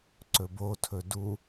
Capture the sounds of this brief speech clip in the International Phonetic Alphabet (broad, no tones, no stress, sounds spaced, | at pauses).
ǀ ɵ b o tʰ ɵ d u